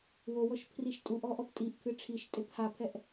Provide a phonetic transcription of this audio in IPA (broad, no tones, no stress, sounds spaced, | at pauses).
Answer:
w o w ɔ ʃ pʰ r i ʃ tʼ u ʔ ɔ ʔ ɔ p tʼ i ʔ kʰ ɨ ʈ͡ʂʰ i ʃ tʼ e p h a pʰ ɛ ʔ